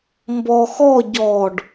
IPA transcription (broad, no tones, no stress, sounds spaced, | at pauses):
m b ɔ x ɔ ɟ ɔ ɖ